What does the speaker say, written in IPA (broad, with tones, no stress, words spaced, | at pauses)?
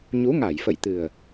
ɲu˨˦ŋa˧˩jfə̰˧˨jt̪ɨ˨˩ə̯